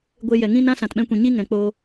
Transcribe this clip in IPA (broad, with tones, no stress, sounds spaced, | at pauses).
ɡʷ e˧ j ɛ˨ ŋ ĩ˦ n ã˦ s ã˨ t ɓ ɛ̃˧ kʷ ĩ˨ ɲ i˦ ŋ ɛ̃˨ k͡p o˧